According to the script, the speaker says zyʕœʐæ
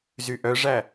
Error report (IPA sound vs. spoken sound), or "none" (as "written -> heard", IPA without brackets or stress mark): ʕ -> ʔ